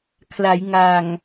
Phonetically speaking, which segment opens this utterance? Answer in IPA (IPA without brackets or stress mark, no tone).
kʰ